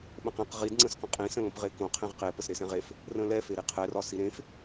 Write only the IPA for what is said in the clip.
ɓə̃qẽq ʁid ŋ͡ǀə̃sqə̃qʼĩsə̃ lõpʁekõ qʰẽʁqe pəsɾesɛ̃ʁef | rə̃lɛfeɾi qʰɛrɒsi ɾẽf

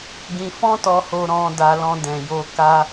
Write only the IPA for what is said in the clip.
ɡĩ˧fɔ̃˦tɔ˧ho˧ ɾɔ̃˧ da˧lɔ̃˧dɛ̃˨jo˧ ka˧

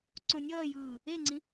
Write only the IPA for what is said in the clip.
ǀõnʲʌːjɯː | eŋ͡ǀĩ

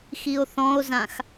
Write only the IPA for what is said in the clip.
xio̯θɔ̃o̯zãx

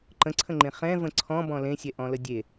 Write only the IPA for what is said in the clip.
ǃə̃ǀʰə̃ŋ͡ǃẽ χɛ̃və̃ ǀʰɔ̃bɔ̃ lẽsʲɛ ʔɔ̃lədʲe

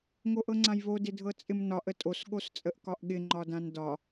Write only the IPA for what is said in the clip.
ŋoʔɤŋ͡ǀãjβo dɪdʱɤt͡sʼɪmnɒʔ ətʼos ɠost͡sʼəʔkɒʔɠɪ ŋ͡ǃɒdãndɒ

